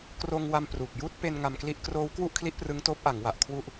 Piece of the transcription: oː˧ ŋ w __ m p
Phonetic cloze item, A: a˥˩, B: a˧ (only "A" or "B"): B